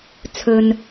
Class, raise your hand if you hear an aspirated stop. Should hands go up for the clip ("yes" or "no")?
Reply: yes